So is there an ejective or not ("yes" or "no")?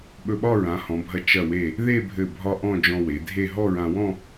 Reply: no